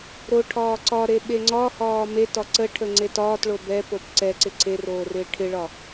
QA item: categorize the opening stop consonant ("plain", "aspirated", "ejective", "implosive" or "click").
aspirated